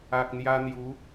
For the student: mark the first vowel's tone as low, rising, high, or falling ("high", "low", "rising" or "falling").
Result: low